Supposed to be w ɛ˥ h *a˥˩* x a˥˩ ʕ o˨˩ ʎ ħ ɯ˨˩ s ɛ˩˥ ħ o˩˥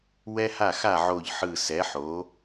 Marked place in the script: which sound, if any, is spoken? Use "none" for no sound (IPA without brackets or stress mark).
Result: a˥˩